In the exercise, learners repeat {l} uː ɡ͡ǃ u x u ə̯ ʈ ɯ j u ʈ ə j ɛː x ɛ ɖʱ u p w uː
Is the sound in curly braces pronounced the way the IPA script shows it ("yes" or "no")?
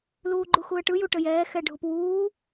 yes